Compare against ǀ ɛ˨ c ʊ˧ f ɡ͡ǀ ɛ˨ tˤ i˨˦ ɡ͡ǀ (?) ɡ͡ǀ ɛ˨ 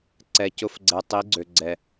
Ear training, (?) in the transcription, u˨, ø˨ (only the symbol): ø˨